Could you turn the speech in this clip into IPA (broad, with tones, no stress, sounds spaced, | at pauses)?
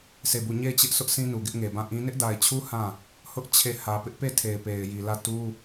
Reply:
s e˦˨ b u˦˨ ɲ e˦˨ ɪ̯ t͡ɕ ɪ˦ ʔ s ʊ˦ ʔ sʰ ĩ˦ n u˨ ɡ ɪ˦ ʔ ŋ e˨ b ã˦˨ ʔ ĩ˦ n ɪ˦ ʔ d a˨ ɪ̯ t͡ɕʰ u˦ h ã˦˨ | h ʊ˦ ʔ t͡ɕʰ e˦˨ h ä˨ p ɪ˦ ʔ p e˦˨ tʰ e˨ ɪ̯ p e˨ ɪ̯ j i˨ l ä˦˨ t u˦